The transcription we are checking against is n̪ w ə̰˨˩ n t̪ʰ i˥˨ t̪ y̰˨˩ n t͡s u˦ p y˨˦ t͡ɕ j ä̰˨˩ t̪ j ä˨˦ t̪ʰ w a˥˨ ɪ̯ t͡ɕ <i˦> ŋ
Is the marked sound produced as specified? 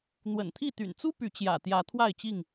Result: no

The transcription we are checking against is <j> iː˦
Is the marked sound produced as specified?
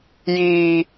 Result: yes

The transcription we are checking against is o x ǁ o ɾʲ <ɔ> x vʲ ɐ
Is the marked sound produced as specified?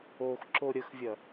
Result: no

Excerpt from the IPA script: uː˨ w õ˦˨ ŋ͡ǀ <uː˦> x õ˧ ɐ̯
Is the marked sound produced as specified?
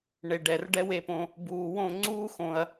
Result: yes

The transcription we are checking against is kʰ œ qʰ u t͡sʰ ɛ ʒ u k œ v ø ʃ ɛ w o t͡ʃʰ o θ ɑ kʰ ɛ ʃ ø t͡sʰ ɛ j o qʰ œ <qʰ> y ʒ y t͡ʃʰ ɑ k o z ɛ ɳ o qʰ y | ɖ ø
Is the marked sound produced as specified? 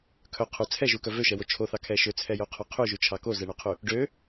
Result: yes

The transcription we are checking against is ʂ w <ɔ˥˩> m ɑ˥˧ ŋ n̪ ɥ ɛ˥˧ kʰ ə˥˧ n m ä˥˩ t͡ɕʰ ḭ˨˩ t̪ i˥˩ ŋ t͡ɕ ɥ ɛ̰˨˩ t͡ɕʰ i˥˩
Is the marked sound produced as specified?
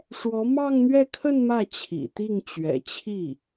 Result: no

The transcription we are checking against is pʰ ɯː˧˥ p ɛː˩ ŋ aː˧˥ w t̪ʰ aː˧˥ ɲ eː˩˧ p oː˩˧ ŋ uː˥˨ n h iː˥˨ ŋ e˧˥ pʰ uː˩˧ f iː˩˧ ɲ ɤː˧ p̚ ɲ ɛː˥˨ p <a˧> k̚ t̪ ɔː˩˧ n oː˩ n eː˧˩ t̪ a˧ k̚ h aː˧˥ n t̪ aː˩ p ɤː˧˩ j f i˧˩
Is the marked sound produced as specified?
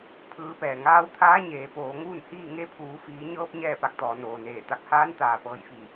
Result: yes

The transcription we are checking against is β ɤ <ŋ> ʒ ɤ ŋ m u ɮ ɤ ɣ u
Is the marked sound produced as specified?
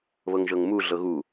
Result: yes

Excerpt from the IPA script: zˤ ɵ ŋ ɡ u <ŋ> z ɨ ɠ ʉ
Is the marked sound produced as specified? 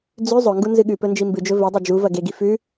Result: no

